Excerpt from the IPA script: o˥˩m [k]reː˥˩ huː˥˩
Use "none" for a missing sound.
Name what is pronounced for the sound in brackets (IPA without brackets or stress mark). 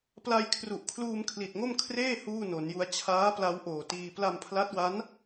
kʰ